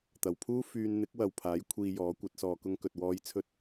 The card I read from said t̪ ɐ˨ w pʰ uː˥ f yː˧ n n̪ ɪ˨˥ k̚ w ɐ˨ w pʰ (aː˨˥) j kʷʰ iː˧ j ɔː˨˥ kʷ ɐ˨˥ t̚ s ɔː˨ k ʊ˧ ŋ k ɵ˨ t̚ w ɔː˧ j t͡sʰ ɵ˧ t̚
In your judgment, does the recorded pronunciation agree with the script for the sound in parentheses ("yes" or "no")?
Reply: yes